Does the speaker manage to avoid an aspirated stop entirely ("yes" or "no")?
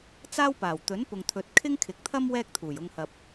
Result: no